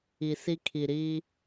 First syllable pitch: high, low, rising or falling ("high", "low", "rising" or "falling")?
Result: low